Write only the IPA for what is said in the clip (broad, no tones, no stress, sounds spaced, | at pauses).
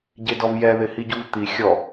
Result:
ɟ e d ɔ v j ɛ ð ɪ h i ɟ u v t̪ i xʲ ɔ